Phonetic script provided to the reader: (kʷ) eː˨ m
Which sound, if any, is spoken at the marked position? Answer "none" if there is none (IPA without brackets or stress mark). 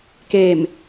k